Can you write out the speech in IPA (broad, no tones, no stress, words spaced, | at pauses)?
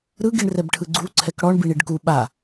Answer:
ɾɯɡiɳ rɛbʈʰɯɡ͡ǀu ǀʰɛkɽɔɳ biɳiɖku ɓa